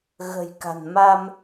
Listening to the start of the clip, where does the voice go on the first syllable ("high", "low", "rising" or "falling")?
low